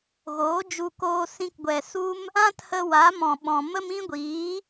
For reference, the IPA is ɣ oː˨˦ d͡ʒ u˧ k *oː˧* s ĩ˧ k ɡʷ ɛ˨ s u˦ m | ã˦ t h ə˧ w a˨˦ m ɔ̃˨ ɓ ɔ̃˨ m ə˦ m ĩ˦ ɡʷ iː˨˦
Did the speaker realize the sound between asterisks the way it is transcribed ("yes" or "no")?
yes